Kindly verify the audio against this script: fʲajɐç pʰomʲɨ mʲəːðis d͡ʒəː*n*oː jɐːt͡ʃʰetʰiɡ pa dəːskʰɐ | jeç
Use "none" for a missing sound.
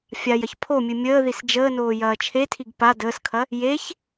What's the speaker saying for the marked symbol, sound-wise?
n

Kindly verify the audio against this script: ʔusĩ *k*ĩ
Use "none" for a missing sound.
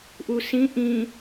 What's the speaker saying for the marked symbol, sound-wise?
ʔ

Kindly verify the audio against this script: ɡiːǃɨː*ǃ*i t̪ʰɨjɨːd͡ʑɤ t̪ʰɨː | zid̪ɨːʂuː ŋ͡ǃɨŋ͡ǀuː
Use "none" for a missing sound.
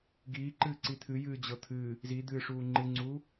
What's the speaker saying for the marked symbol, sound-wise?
ǀ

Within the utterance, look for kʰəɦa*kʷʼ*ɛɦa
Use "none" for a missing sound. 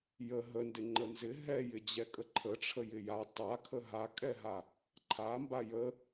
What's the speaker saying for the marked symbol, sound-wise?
kʼ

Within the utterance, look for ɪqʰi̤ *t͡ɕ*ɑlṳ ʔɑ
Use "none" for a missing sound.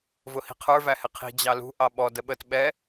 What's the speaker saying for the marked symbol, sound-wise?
d͡ʑ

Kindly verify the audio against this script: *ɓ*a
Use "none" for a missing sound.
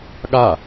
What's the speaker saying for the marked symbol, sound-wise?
ɠ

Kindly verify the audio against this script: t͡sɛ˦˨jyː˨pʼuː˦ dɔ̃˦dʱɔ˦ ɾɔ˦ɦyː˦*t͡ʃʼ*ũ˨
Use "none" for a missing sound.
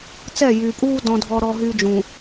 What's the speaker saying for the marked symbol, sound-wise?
d͡ʒ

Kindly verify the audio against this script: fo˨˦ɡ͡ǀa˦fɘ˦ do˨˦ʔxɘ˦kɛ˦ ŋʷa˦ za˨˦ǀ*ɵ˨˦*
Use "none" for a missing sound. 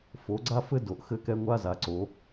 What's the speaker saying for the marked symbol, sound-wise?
o˨˦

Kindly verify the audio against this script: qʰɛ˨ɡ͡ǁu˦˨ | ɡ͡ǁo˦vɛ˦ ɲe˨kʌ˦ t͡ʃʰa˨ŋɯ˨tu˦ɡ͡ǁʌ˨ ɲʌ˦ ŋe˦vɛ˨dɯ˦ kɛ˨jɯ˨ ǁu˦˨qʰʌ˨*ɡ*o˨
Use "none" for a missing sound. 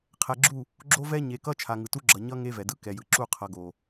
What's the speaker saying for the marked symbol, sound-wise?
ɡ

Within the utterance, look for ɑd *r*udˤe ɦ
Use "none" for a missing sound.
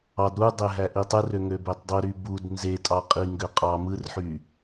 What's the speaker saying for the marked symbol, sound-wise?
ɾ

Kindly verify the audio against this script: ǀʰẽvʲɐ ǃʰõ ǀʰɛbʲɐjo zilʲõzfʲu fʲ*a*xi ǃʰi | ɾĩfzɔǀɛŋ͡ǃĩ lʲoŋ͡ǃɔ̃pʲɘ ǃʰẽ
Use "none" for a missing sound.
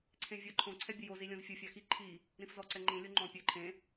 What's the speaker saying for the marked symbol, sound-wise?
a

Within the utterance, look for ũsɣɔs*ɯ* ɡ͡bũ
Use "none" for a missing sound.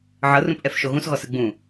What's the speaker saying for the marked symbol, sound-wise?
ɯ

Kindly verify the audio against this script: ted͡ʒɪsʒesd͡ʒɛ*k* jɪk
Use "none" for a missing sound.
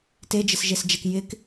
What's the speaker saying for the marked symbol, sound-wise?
k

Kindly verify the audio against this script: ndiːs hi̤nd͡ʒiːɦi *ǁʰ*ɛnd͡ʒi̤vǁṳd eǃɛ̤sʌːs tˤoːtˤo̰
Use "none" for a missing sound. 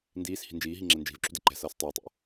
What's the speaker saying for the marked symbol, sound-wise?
ŋ͡ǁ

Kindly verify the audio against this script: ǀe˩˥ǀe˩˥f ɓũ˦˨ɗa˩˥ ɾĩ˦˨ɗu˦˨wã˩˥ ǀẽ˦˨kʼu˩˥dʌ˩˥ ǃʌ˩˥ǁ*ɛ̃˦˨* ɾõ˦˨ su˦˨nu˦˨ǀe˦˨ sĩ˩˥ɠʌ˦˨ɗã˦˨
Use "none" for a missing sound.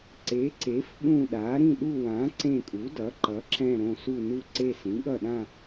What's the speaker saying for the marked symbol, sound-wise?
ɛ̃˦˨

